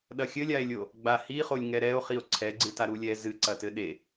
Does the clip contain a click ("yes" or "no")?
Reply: yes